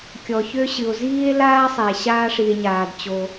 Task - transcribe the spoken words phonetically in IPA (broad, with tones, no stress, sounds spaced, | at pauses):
kʲ ɔ˩ ç ø˥ ɕ ɨ˩ o̯ z iː˥ e̯ l aː˥ sˤ e˩ ɕ aː˥ ʂ i˩ e̯ ɲ aː˩ d t͡ɕ o˩